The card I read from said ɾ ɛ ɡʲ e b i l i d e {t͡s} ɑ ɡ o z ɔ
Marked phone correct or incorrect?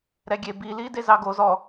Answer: incorrect